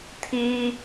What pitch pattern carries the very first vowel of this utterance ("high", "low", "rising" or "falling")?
high